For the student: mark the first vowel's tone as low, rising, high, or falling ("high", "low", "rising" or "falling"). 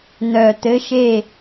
low